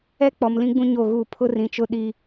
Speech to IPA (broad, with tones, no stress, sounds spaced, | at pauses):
ɛ˦ k͡p ɔ˨ m l ĩ˦ ɡ͡b ũ˦ ɲ o˦˨ ɣ uː˦˨ pʰ ʊ˦ r ĩ˨ t͡ʃ ʊ˦ ɗ i˦